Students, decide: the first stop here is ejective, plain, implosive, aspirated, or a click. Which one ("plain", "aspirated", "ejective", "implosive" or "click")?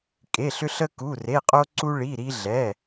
ejective